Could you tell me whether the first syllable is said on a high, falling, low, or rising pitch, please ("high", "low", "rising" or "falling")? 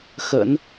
low